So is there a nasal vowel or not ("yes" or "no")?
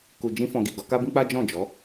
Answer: yes